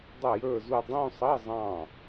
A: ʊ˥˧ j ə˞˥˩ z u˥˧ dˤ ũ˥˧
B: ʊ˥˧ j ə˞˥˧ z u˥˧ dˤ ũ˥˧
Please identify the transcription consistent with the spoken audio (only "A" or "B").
B